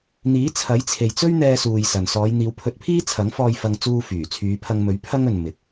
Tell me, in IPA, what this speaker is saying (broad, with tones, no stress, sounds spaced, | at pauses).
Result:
n̪ iː˨˥ t͡sʰ ɐ˨˥ j t͡sʰ e˨ j t͡s ɵ˥ ɥ n̪ ɛː˥ s uː˧ j s ɐ˨ n s ɔː˨˧ j n̪ iː˨˧ w pʰ ɵ˧ t̚ pʰ iː˥ t͡sʰ ɐ˨˥ ŋ f ɔː˧ j f ɐ˧ ŋ t͡s uː˧ f yː˨˩ t͡sʰ yː˨˧ pʰ ɐ˧ ŋ m ɵ˨˥ ɥ pʰ ɐ˥ ŋ ɵ˨ n m ɪ˨˥ k̚